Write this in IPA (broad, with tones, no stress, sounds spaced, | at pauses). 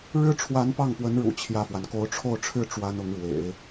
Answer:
ɻ ɻ̩˥ ʈ͡ʂʰ w a˧˥ n p ɑ˥˩ ŋ p w ə˧˥ n ɻ ṵ˨˩ t͡ɕʰ j ä˥˩ f w a˩ n k o˧˥ ʊ̯ ʈ͡ʂʰ o˥˧ ʊ̯ ʈ͡ʂʰ ɻ̩˥˩ ʈ͡ʂ w a˥ n ʊ˧˥ ŋ ɻ w ḛ˨˩˦ ɪ̯